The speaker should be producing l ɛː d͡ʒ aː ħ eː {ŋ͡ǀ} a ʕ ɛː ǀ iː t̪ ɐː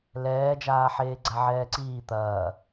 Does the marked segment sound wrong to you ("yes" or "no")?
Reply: yes